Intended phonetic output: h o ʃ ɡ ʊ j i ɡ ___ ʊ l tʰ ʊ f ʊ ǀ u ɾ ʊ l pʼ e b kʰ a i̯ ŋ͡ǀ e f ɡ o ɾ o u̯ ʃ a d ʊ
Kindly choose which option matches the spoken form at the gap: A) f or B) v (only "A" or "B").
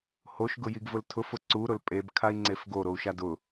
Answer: B